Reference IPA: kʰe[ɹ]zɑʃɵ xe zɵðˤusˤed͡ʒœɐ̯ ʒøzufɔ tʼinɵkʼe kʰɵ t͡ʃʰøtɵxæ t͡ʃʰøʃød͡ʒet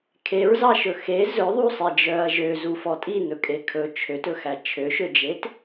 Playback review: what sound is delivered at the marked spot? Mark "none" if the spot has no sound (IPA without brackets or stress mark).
ɹ